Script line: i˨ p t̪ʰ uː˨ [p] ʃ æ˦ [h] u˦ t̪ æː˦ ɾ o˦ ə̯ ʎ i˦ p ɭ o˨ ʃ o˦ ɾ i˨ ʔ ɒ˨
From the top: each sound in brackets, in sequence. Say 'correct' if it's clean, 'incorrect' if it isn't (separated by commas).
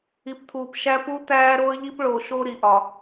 correct, incorrect